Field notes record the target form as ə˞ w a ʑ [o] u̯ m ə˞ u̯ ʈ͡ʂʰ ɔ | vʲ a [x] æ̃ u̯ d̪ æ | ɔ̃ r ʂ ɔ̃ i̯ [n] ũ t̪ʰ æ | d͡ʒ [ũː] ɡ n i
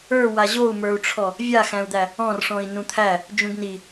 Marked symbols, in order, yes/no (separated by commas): yes, yes, yes, no